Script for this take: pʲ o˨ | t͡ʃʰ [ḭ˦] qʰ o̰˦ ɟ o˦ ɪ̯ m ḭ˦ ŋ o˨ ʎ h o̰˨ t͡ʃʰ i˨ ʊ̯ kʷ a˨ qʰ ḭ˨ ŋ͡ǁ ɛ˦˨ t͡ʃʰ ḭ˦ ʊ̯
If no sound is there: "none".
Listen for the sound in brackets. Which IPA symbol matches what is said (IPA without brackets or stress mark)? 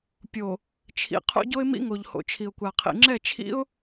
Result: ḭ˨